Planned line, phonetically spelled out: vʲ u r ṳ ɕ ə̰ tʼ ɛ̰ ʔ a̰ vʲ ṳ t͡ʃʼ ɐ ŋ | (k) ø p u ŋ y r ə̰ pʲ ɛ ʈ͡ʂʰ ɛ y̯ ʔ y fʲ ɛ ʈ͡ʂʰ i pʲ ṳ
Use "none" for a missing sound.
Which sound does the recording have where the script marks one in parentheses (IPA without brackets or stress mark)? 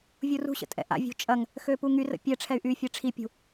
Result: x